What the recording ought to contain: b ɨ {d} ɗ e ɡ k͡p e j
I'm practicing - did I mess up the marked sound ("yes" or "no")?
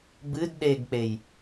no